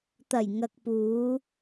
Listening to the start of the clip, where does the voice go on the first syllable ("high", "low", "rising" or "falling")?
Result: low